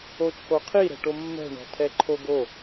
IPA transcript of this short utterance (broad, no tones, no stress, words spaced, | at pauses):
ot͡ʃʰoqʰi ɾɛ̤ʈomːɛ̤ ɳɔ̤tʰɛǃʰoɡo